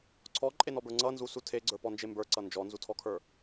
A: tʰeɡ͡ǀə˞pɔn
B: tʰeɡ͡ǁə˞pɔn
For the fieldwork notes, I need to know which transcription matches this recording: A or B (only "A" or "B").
A